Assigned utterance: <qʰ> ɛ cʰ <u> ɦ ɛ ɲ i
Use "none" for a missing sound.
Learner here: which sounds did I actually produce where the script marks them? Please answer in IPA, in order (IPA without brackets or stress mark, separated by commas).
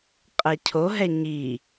qʼ, o